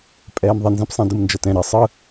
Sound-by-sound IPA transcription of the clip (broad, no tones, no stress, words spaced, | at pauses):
pʼɛːmðˤinzɛ̃p sˤĩdɯmnd͡ʒʌtɛ̃ ɾi sˤɯ